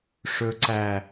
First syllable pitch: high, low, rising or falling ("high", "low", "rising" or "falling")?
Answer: low